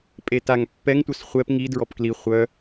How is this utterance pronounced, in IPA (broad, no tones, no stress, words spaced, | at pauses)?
pʼetaŋ pːɛŋtʷœs χʷɛp ŋi dɹɔpkli χʷœ